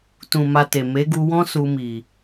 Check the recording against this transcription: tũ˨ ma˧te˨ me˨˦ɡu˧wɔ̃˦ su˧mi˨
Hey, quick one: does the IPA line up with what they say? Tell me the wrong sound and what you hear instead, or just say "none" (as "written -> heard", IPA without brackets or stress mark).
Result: none